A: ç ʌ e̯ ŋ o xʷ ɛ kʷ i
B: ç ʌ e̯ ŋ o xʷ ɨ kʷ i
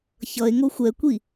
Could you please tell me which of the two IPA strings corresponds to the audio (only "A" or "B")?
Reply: A